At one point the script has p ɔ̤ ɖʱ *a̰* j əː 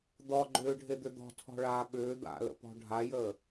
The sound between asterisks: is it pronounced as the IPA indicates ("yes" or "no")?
no